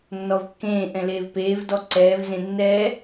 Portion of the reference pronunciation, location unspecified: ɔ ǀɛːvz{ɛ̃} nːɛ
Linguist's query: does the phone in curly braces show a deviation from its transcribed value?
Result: yes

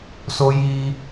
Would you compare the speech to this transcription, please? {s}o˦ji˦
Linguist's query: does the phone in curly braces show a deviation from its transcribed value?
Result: no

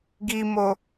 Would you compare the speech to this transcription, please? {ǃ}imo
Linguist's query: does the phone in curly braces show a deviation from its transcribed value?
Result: yes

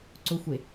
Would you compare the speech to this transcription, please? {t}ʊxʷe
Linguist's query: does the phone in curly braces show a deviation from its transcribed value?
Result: yes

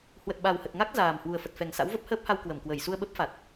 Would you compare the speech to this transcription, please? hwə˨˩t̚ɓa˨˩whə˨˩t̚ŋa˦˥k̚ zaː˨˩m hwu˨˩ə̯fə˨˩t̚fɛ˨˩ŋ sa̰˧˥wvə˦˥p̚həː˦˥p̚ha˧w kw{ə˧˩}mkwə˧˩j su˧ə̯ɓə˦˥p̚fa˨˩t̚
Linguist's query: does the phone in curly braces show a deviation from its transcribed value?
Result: no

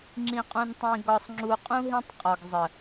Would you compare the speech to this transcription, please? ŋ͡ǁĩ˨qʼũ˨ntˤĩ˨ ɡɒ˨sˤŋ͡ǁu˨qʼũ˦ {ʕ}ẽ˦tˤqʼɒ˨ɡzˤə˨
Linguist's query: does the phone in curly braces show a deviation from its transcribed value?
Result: yes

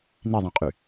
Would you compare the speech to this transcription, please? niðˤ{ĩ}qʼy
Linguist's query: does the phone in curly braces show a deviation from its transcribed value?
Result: no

